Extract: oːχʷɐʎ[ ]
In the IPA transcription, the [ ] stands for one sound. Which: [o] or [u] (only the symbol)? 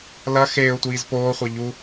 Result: u